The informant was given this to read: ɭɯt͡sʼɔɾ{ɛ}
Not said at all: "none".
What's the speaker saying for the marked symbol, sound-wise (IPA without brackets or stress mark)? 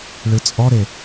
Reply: e